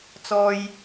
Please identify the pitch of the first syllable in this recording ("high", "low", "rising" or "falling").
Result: low